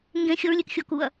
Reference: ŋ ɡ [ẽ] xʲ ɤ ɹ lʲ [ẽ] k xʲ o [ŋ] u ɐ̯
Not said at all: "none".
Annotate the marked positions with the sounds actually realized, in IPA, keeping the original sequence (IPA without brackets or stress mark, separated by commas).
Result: ẽ, e, k